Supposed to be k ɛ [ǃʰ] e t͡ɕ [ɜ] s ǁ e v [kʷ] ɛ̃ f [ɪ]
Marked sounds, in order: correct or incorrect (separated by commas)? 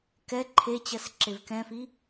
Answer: correct, correct, incorrect, incorrect